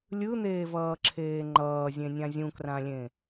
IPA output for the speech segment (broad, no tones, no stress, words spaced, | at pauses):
lʲɯn̪eːvʌːǁʰeː ŋ͡ǃʌːzʲẽnʲã zʲũkrãlʲẽ